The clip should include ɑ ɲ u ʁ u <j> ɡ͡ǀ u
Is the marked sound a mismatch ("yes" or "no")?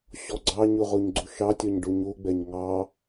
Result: yes